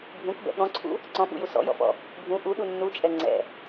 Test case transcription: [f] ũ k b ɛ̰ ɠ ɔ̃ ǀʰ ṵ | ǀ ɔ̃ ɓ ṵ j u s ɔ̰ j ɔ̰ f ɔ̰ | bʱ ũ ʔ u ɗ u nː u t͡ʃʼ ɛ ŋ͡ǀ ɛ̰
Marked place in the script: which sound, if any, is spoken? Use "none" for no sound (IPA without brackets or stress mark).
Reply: bʱ